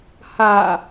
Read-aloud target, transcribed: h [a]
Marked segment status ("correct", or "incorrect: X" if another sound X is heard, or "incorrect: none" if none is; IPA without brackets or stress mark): correct